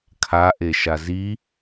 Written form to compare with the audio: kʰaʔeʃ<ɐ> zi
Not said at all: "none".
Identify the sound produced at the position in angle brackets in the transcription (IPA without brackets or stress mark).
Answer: a